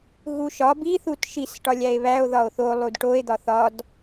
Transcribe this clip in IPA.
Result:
ɣ u ʃ ɒ b i θ u t ʃ i s ʈ ɒ lʲ æ e̯ β æ o̯ ð ɒ o̯ θ o lˠ u d ʈ o e̯ d̪ ɒ θ ɒ d

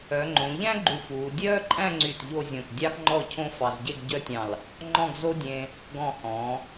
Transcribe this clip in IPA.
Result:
œ˩˧ ŋ͡ǃ õ˩˧ ʎ æ̃˥ ɡ͡ǃ u˧˩ f uː˩˧ dʲ œː˥ ǃʼ æ̃˥˧ ŋ͡ǀ y˧˩ t ʎ o˥˧ zʲ õ˧˩ t dʲ ɑ˥ x ŋ͡ǃ ɔ˥˧ cʰ õ˥ f ɑ˧ z ɟ e˥˧ ɡ ɟ œ˥ tʲ ɑ̃˧˩ l | ŋ͡ǃ ɔ̃˥˧ ɡ z o˥ dʲ ẽ˧ | ɡ ɔ̃˧˩ h ɔ̃˩˧

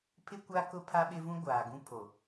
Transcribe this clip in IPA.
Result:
pʰ ɪ˦ kʷ a˦ k ʊ˦ pʰ a˦ ɓ ɪ˦ v ũ˦ ɡʷ aː˨ ɡ ũ˦ pʰ o˨

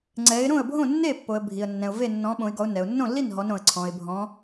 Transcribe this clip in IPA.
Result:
ŋ͡ǀ ɛ˨˦ ɪ̯ ɾ õ˥˨ ə̯ bʱ õ˥˨ nː e˥˨ pː o˨ ə̯ bʱ i˨ ə̯ nː ɛ̃˨ ʊ̯ v e˥˨ nː ɔ̃˨˦ ɓ õ˨˦ ɪ̯ ɡ ɔ˨˦ ʊ̯ n ɛ˨ ʊ̯ nː õ˥˨ lː i˥˨ n ɦ ɔ˨˦ n ɾ õ˨ ə̯ ǀʰ ɔ̃˨ ɪ̯ bʱ ɔ̃˨˦

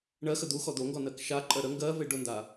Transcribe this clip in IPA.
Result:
ɳ ɜ x ə d̪ u x ɔ d̪ o ŋ ɡ ɔ n ɜ k ʃ a ǃʼ ɜ ɾ ə ŋ ɡ ɜ v e ɖ ʊ n d a

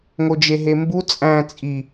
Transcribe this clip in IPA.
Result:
ŋ o d͡ʒ e ɦ e m b u t͡sʼ æ̃ t͡sʼ i

